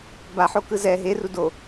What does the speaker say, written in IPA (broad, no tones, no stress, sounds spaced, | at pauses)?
b a ħ o k ɯ z ɛ ɦ e r u d o